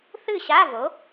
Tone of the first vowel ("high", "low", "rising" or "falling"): falling